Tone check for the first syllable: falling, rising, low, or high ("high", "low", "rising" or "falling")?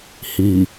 low